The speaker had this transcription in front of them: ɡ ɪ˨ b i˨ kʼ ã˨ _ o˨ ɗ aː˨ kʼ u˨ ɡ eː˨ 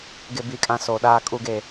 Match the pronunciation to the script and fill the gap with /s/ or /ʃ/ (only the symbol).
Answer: s